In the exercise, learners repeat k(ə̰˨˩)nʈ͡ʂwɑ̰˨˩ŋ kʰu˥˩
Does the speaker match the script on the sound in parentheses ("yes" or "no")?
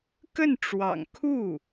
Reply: no